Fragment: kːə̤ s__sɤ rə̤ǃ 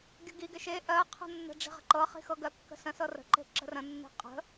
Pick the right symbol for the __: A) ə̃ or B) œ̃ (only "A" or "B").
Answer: A